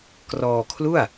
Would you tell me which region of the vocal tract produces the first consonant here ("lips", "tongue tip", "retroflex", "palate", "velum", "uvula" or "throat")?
velum